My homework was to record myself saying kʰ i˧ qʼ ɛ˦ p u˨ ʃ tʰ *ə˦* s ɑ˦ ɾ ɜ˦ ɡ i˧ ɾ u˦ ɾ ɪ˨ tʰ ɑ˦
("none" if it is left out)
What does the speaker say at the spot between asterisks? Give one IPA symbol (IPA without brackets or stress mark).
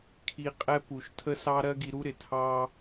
ə˦